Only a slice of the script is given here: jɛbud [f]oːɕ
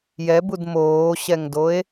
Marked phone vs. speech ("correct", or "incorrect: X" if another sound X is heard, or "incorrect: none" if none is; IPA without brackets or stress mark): incorrect: m